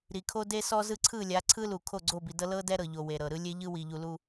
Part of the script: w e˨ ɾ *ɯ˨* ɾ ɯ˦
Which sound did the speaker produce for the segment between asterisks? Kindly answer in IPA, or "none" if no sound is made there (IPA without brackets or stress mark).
ɤ˨